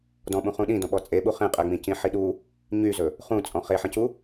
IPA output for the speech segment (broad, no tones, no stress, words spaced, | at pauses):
dɔ̃ɓũ χũɗĩdɔ̃ɓɔ t͡sʼeɓu χẽqʼɛŋ͡mĩ cĩħiɗu | ɲyzɵ | χũt͡sʼɔ̃ χeħə̃cu